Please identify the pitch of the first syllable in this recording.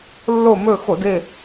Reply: falling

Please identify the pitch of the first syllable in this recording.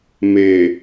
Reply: low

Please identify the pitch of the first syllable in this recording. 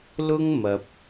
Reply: high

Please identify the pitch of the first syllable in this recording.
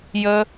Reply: high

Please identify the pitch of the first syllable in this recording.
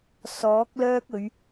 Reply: rising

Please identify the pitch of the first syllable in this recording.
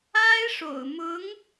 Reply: high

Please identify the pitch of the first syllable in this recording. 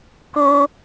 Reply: high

